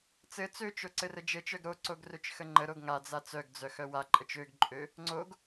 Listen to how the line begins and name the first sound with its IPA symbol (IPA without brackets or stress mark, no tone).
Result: t͡s